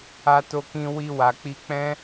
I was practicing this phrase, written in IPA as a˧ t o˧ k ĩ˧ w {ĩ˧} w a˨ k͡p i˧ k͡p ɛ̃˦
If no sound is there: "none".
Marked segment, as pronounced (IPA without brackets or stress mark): i˧